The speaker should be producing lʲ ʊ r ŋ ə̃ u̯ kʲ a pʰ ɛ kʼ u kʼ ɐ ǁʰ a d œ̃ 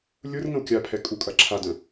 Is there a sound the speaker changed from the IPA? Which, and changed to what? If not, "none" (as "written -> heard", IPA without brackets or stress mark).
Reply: none